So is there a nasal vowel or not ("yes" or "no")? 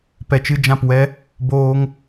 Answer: yes